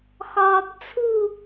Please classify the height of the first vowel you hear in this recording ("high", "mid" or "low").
low